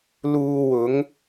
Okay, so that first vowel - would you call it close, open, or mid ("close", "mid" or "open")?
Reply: close